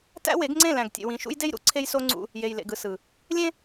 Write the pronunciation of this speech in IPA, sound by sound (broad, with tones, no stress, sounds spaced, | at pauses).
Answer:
t æ̰˦ w e˨˦ ɡ ŋ͡ǀ ẽ˦˨ l æ̃˨ ɡ tʲ ḛ˨ w ĩ˨ ʃ ṵ˦ j d e˦ j ɾ ṵ˦ ǀʰ e˦ j s o˦ ŋ͡ǀ ṵ˦ | j e˨ j l ḛ˨ ɡ ɯ˨ s ɯ˨ | lʲ ẽ˦